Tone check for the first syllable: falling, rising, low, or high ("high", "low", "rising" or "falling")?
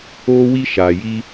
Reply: high